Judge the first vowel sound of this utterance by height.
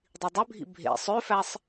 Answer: high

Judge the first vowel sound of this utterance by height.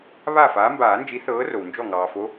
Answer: low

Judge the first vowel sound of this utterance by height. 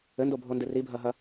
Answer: mid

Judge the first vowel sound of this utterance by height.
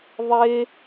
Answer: mid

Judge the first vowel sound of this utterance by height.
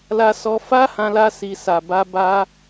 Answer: low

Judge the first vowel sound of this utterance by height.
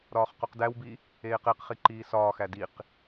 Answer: low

